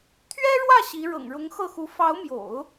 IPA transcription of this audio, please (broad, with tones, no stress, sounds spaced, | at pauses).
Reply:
t̪ʰ ɥ ɛ˥ ɻ w ä˥˩ ɕ i˧˥ ɻ ɤ̰˨˩ ŋ ɻ ʊ˧˥ ŋ x ɤ˥˩ x u˧˥ f ɑ˧˥ ʊ̯ m j o̰˨˩˦ ʊ̯